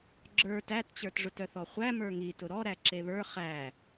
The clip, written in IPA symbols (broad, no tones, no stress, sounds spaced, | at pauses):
ɡ͡ǁ ə˞ t æ t t͡ɕ ə˞ t ʐ ʊ t œ θ ɔ χʷ æ m ə˞ ŋ i t ʊ ɾ ɔ ɾ æ ǁ e β ə˞ χ æ